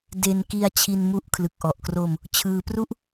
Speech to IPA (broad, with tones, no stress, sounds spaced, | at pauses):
d e˧ n k i˧ a̯ t͡ɕʰ i˧ n m u˦˥ ʔ kʰ l ɯ˨˩ k̚ ʔ ɔ˨˩ ʔ k r o˧ m | t͡ɕʰ ɯː˧ p r u˥˩ ʔ